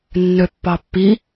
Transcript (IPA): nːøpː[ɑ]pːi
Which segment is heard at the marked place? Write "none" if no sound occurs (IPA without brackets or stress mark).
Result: ɑ